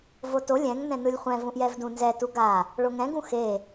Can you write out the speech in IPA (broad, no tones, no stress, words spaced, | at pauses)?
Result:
voto lʲɛ̃ŋ nɛ̃nɯlʲχʷɛ̃ vũʔjɛvdũnzɛ tuɡa | ɭoŋɛ̃ɡ ũxe